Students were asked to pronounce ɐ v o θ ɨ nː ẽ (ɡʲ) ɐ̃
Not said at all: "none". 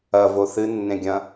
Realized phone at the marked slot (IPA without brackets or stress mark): ɡʲ